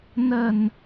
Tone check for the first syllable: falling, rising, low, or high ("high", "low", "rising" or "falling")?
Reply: low